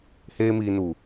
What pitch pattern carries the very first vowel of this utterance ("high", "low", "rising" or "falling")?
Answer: high